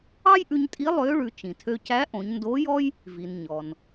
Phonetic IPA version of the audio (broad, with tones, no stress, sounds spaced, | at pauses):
ɑ˥ j ʔ ʉ˧ ɲ tʼ i˧˥ lˠ ø˧˥ ɭ ʉ˩˧ t͡ʃ ĩ˩ tʰ ø˧ c æ˧˥ ʔ õ˩˧ ɲ n d o˧˥ j ɔ˥ j | v i˩ n ɲ ɔ˩ n